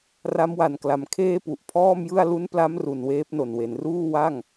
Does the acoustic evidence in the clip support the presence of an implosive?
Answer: no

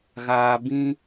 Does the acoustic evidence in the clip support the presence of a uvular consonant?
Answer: no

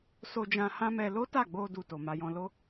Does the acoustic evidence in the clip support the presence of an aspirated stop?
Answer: no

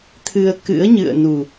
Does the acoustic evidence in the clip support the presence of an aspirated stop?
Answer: yes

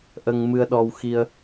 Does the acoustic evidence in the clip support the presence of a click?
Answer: no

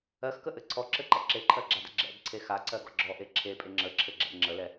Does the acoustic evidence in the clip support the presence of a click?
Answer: yes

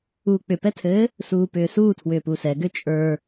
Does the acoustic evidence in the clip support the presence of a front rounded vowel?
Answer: yes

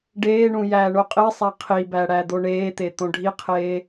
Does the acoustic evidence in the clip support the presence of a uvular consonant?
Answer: yes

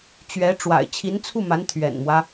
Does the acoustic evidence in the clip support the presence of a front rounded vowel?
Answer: no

